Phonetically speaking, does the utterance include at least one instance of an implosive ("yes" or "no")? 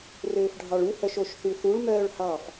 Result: no